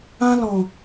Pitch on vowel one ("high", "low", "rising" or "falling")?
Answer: high